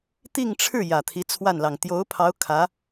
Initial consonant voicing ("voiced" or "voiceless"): voiceless